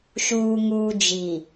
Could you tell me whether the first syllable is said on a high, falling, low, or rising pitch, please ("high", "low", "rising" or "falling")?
low